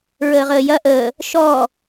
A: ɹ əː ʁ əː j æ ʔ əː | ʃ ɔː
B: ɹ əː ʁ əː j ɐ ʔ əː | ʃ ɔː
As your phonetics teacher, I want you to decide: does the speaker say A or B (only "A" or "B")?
B